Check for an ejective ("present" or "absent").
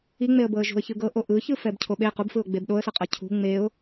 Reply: present